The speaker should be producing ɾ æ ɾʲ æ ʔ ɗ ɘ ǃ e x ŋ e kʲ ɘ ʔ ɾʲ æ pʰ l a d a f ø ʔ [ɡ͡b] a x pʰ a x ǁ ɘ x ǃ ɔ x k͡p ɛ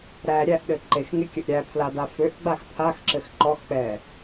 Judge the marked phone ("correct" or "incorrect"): correct